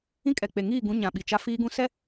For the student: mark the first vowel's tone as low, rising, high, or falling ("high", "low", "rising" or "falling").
high